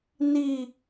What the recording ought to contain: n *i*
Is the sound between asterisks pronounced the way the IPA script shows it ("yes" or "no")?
yes